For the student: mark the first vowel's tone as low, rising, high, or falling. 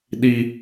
high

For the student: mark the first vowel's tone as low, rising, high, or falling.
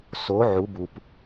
rising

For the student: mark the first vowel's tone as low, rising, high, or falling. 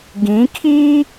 rising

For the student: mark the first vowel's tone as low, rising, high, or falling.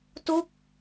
falling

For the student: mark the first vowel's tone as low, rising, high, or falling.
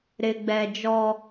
low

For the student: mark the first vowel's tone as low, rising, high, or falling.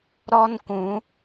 high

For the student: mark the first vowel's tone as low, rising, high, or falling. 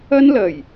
high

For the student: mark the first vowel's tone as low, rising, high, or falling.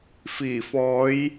low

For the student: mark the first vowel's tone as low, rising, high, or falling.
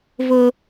high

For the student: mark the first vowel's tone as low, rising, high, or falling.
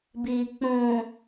low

